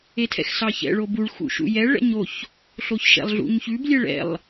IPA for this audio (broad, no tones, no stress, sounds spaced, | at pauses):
e tʰ ɛ̰ x s ɑ ç ɛ̰ ɭ o b u ɭ x ṵ ʃ ṵ j ɛ ɭ ɛ̰ ɲ o ç | ɬ o ç ʃ ɛ̰ lˠ ɮ ṵ ɲ ç ʉ b lʲ ɛ ɭ ɛ̰ lˠ